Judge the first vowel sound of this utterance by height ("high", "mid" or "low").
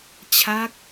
low